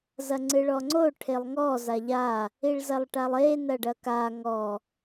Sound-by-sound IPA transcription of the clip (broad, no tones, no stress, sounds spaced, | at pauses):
z ɐ ŋ͡ǀ ɨ ɭ ɔ ŋ͡ǀ o ʈʰ e lˠ ŋ ɔ z a ʎ a | i ɭ z ɐ lˠ ʈ a lˠ e n ɐ ɖ ɐ k a ŋ ɔ